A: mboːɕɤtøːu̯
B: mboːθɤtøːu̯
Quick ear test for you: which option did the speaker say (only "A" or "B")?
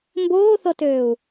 B